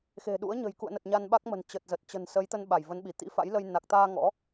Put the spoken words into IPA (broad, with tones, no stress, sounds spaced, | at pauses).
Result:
x e̤˨˩ ɗ ṵ˧˥ ə̯ ɲ ə̤˨˩ j k ṵ˧˨ ə̯ n ə˨˩ t̚ ɲ a˧ n ɓ a˦˥ k̚ m ə̤˨˩ n t͡ɕ ə˨˩ t̚ z ə˨˩ t̚ t͡ɕ ə̤˨˩ n s ə˨˦ j t̪ ə˧ n ɓ a˧˩ j v ə˨˦ n ɓ i˧˩ t̪ ḭ˧˥ f a̰˧˥ j l ə˧ j n a˨˩ k̚ t̪ aː˧ ŋ ɔ̰˧˥